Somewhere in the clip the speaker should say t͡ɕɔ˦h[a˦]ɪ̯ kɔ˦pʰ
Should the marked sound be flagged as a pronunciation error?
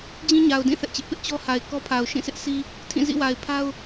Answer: yes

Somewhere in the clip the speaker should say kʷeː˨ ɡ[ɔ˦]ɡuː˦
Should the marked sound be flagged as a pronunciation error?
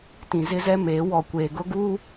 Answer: yes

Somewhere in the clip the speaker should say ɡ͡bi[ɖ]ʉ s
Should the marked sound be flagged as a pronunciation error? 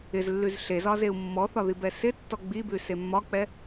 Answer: yes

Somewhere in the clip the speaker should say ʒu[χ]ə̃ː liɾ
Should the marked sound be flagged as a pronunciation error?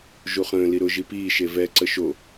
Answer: no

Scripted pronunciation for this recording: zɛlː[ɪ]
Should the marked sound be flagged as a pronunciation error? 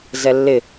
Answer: no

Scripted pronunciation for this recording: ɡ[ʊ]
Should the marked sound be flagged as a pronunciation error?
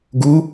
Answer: yes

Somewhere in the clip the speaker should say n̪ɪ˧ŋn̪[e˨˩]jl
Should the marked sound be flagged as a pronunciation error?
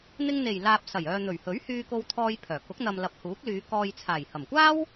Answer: no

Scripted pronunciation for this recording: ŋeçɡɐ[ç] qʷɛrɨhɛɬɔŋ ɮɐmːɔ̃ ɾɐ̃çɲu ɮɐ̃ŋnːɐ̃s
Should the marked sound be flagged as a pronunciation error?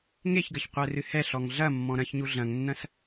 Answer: no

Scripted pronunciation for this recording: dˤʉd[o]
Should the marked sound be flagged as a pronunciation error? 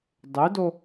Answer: no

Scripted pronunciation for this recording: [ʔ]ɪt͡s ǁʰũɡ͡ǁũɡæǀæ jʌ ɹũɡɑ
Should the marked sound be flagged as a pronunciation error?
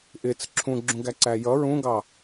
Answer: no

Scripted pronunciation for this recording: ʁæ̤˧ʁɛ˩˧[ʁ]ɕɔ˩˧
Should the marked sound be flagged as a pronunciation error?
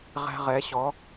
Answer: yes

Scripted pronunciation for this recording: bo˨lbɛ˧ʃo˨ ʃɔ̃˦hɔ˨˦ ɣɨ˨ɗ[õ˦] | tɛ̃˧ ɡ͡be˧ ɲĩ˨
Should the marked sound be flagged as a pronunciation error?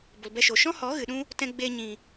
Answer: yes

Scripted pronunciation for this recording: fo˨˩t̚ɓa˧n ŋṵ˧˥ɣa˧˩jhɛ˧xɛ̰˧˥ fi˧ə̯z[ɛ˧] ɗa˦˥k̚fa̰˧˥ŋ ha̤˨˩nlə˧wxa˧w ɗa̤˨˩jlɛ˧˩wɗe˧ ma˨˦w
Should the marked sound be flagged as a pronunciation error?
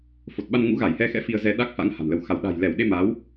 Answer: no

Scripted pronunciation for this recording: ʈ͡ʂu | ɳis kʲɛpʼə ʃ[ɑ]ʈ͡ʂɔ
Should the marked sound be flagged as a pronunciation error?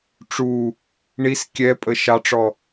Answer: no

